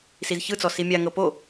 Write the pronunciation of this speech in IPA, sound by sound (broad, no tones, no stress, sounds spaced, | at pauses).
s i z ç ɯ t͡s ɔ s i mʲ a ŋ ɤ p o